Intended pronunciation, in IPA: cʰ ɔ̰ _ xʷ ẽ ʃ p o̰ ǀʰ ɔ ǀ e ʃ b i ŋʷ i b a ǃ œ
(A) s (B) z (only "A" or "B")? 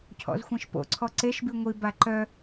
B